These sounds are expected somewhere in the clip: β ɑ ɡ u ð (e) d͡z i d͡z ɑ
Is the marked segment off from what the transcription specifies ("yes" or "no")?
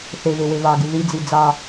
yes